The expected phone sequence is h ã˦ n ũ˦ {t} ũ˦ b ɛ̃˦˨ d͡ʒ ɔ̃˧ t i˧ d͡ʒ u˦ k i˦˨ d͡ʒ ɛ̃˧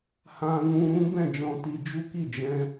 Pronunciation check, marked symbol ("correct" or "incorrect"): incorrect